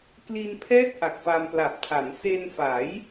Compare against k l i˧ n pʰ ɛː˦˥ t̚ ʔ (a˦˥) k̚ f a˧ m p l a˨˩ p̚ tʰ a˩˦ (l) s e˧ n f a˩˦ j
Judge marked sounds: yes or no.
no, no

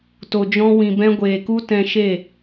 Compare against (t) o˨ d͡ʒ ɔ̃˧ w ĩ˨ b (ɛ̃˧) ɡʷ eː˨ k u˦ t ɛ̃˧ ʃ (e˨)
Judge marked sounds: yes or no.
yes, yes, no

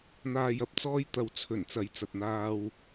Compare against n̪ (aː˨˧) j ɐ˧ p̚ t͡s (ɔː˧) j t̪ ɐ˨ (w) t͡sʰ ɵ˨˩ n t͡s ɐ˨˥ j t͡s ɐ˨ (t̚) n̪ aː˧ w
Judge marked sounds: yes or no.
no, yes, yes, yes

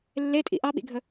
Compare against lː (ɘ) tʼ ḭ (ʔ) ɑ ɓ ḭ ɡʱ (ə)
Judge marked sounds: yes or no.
no, yes, yes

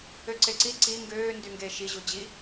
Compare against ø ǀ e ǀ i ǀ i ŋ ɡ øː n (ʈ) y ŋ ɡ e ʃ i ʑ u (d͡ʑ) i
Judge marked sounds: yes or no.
no, yes

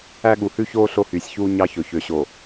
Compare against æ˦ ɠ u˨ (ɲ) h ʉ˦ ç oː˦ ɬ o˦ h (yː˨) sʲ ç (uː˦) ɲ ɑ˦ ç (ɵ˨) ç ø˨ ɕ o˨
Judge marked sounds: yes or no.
no, yes, yes, yes

